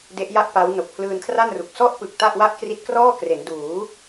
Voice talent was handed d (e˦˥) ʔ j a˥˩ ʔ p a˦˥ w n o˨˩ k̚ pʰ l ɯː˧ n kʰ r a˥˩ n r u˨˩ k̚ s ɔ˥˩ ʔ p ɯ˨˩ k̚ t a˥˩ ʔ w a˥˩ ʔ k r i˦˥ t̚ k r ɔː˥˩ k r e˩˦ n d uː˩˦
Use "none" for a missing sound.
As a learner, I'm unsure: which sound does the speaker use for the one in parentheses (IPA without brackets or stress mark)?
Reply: e˦˥